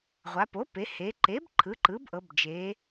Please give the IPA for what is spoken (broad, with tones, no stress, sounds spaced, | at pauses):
ʁʷ a˩˧ p o˩˥ p e˩˧ h e˩˧ ǃ e˩˥ b ǃʰ ɯ˩˥ ǃ ɯ˩˥ b ʔ ɤ˩˧ b d͡ʒ e˩˧